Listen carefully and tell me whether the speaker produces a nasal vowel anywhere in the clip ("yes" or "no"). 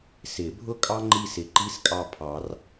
no